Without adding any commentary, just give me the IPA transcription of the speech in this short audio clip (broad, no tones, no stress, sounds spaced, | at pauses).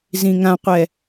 z ĩ ŋ ã qʷ ɛ